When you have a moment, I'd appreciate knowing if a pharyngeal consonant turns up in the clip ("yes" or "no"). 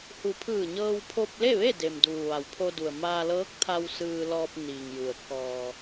no